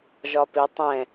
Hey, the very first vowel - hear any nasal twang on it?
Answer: no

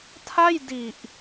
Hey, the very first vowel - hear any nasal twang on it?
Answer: no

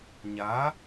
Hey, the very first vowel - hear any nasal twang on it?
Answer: no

